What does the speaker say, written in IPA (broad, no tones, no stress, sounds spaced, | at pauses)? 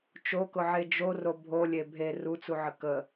t͡ʃ o k ʊ ʕ e d͡ʒ o r o bʱ o lʲ e bʱ e r u t͡s u ʕ ə k ə